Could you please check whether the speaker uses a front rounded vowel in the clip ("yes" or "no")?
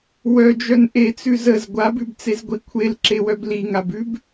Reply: yes